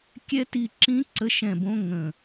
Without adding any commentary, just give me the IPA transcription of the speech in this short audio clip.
kʲɛ˦˥ti˦˨ǁĩ˦˥ ǀə˦˥ʃɛ̃˦˨bõ˦˥ ŋə̃˦˨

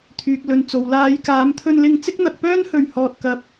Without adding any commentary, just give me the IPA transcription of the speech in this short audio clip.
t̪ʰyː˨k̚lɵ˨nt͡so˨w laː˨˧jkaː˨˧mt̪ʰɵ˧nlɪ˧ŋ t͡sɪ˥k̚n̪ɐ˧k̚pœː˥nhɵ˧ɥ hɔː˧t̚kɐ˧p̚

